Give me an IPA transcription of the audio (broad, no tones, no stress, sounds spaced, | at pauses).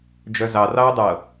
d͡ʒ œ z ɑ r ɑ ʊ̯ dˤ ɤ